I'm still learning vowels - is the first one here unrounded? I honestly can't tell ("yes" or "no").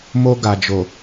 no